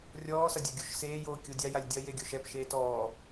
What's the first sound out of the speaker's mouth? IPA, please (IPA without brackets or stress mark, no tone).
rʲ